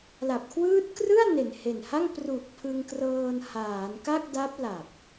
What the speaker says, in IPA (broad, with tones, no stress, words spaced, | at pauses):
la˨˩p̚kʰwɯː˦˥t̚krɯ˥˩a̯ ne˨˩n he˨˩nha˥˩ŋ pru˨˩k̚ pʰɯ˧ŋkrɤː˧nhaː˩˦n ka˥˩k̚da˦˥p̚ la˨˩p̚